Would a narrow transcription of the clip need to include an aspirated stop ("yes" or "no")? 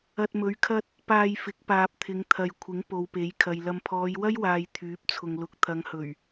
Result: yes